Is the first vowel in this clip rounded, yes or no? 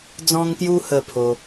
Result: yes